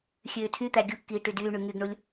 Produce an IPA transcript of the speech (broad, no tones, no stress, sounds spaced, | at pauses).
xʲ øː tʰ y t̪ æ ɡʲ u kː iː ʈ y d yː ɳ y ŋ y ɡ ɳ u lʲ